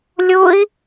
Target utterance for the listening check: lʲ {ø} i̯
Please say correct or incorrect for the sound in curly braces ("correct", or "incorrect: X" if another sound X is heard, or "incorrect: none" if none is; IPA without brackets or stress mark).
incorrect: u